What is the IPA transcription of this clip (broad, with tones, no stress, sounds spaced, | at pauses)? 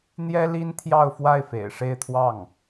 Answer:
n̪ j ɛ˥ l i˥ n t̪ʰ j ɑ˥˧ ʊ̯ f w a˥˩ ɪ̯ f ḛ˨˩ ɪ̯ ʂ e˥˧ ɪ̯ t̪ʰ w ɑ˥˩ ŋ